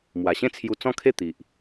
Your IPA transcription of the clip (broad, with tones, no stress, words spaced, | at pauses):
mwa˨˩ɕẽ˥˧t͡sʰju˧t͡sɔ̃˥˧ kʰe˥˧ t̪i˨ʔ